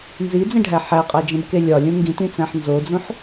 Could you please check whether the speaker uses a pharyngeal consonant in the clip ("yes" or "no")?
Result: yes